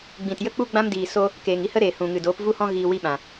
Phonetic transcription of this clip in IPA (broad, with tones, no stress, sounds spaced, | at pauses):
ɡ͡b ĩ˨ t j ə˦ k͡p u˦ ɡ͡b ã˦ m d iː˨ s o˦ | k eː˨ ŋ i˦ h ə˦ ɾ eː˨ h ũ˨ ŋ ɨ˨ d oː˨˦ p v u˦ h ɔ̃˦ ɣ iː˧ w i˦ ɓ ã˨